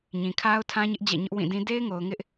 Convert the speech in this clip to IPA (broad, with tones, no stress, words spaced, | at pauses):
ɲĩ˨kʰa˦ʊ̯tʰã˦ɲɪ˦ʔ d͡ʑɛ̰˦˨ɲʊ˦ʔwĩ˦˨dĩ˦ de˦ɪ̯ŋo˨ʊ̯ ŋɪ˦ʔ